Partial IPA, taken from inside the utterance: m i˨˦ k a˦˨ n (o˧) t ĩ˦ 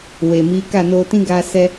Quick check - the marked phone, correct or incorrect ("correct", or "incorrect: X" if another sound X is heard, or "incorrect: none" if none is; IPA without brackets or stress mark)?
correct